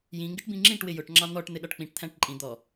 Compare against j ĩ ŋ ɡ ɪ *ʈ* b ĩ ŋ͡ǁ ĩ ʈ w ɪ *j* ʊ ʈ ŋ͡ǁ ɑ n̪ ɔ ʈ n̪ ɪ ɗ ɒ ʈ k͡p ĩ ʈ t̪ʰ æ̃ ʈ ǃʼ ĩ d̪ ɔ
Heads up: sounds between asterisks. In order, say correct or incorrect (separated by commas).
correct, correct